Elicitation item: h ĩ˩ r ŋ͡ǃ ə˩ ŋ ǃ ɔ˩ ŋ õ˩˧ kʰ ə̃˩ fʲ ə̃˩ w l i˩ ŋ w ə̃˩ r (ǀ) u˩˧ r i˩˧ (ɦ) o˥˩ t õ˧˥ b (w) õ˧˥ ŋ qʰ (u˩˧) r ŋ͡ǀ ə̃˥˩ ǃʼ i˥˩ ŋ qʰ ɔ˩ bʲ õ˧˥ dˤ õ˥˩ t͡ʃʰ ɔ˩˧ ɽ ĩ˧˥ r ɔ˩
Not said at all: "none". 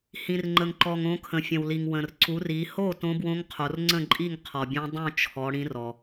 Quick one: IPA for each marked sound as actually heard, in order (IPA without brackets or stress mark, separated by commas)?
ǀ, h, w, o˩˧